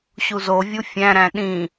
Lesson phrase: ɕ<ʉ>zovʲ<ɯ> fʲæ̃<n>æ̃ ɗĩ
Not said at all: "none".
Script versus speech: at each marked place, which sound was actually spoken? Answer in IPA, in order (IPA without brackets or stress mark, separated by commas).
u, u, ɾ